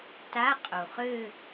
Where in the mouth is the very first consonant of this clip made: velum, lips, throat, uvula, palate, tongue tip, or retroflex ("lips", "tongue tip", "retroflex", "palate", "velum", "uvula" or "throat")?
tongue tip